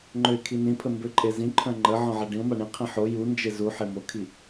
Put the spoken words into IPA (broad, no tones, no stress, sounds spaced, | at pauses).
ŋ͡ǃ ø ɪ̯ kʰ i n ĩ pʰ ə m b ø ǃʼ e z ĩ ǃʰ œ̃ ŋ͡ǃ ə ʕ ɔ̃ ʕ ɛ ɖ ĩ ʊ̯ m a ɳ ĩ qʰ ĩ ħ o j u n d͡ʒ e z u ħ e m o kʰ i